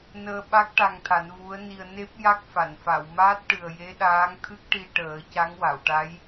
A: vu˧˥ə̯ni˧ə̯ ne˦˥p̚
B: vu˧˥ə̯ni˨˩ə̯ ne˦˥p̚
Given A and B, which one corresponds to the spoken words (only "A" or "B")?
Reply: A